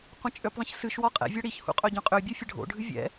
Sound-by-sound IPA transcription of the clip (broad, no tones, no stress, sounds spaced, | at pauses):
qʷ ə̃ t͡ʃʼ ø p ðˤ ə̃ ç s ɨ ʃ w ɒ qʼ ɛ̰ vʲ ɒ ɽ i ç h ṵ qʼ œ ɟ œ̃ qʼ ø bʲ o fʲ ə ɖʱ o̰ ɖʱ ɨ vʲ ɛ̰